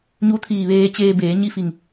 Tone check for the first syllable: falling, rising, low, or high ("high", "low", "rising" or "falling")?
rising